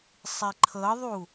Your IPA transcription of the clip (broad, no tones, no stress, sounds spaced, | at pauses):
sˤ i ǃʰ ɤ ðˤ u